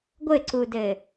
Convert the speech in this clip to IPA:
ɡʷ ɘ ǀ u d ɘ

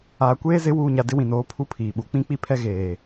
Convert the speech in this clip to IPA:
aː˨ kʷ eː˦ z ɪ˨˦ w uː˨ ɲ a˨ d ɪ˦ w ĩ˨ n oː˨˦ pʰ u˦ pʰ iː˨ ɓ u˨˦ k͡p ĩ˦ k͡p i˦ pʰ ɛ˦ ɣ eː˨

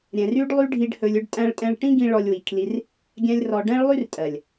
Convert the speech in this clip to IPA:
ɾʲ ɛ̃˨ r y˦ ɖ lˠ y˦ ɖʱ i˦ ɖ h ɵ˧ lʲ ɵ˦ ɖ tʼ æ̃˧ ɭ tʼ ɛ̃˧ ɭ ʈ ĩ˦ ɡ ĩ˧ ɭ ɔ˧ lʲ w i˨ kʰ l i˧ r | ɡʲ æ̃˦ lʲ r ɔ˧ ɖ ɛ̃˦ ɭ lˠ y˦ r tʼ ɜ˨ lʲ

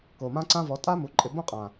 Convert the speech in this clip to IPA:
k o˨ m ã˦ ǀ ã˦ v ɔ˨˦ tʼ a˦ m u˨˦ ǃʼ ɪ˧ b õ˦ qʼ ã˨

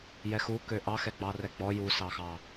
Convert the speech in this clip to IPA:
j ɛ x u k ø ʔ ɑ x ɛ ɡ͡b ɑ r ɛ ɡ͡b ɔ j u s ɑ x ɑ

